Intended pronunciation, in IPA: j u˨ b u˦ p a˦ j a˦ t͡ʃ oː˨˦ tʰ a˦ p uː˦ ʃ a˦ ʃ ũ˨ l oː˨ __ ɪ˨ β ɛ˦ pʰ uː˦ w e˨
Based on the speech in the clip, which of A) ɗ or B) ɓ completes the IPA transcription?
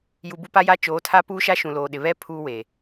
A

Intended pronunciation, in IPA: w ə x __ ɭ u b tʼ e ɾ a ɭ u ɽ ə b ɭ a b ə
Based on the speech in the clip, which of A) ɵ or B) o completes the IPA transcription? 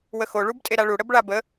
B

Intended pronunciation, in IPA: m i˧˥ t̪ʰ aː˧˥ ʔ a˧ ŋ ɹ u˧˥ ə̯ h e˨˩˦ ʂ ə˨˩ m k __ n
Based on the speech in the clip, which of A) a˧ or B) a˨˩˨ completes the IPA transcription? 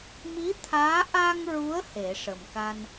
A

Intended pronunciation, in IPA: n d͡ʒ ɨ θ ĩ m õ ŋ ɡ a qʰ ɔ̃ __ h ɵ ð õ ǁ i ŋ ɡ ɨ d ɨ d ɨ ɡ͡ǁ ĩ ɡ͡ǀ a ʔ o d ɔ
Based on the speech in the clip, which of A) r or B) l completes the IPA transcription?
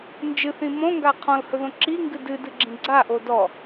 B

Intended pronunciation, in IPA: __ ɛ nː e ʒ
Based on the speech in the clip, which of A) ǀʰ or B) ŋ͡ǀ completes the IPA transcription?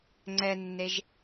B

